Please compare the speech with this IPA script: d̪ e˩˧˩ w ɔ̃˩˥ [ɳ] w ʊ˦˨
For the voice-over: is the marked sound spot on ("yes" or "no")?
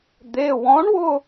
yes